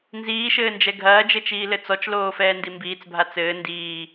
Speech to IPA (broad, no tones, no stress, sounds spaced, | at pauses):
n z iː ʃ ɘː n d͡ʒ ɛ ɡʱ ɐː d͡ʒ ɘ t͡ʃ iː l ɘ t͡s ɔ t͡ʃ l oː f ɛː n d i m b iː t͡s bʱ a t͡s ɘː n d iː